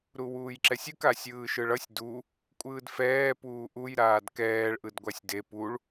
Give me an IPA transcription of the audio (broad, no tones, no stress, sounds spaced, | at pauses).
ɾ u w uː j ǁ ɛ sʲ ɯ k a sʲ ɯː ʃ ɯ ɭ ʌ sʲ d u | kʷʼ ɯː d f ɛː p uː ʔ u j ɾ aː d k ɛː ɭ ʔ ɯ d ɡʷ a sʲ d e p u ɭ